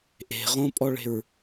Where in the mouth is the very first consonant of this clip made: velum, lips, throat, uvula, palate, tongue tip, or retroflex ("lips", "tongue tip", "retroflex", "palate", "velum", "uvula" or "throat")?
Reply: throat